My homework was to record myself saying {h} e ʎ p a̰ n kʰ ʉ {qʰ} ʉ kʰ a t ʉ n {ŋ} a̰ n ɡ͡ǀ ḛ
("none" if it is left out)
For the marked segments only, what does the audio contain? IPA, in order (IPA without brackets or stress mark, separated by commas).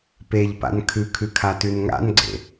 p, kʰ, ŋ